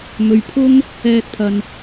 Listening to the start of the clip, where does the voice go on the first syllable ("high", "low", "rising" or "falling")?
low